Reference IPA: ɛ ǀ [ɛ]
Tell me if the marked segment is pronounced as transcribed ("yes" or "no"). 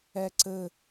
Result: no